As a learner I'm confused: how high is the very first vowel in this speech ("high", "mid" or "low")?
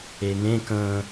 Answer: mid